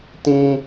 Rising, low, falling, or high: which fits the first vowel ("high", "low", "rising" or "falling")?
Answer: high